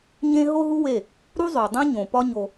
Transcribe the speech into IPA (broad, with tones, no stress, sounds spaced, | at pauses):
ɲ ẽ˦ ɦ o˦ ɦ u˦ w e˦˨ | ɾ u˦ zˤ o˨ dˤ ẽ˦ ɲ õ˨ p ɒ˦ ɲ o˧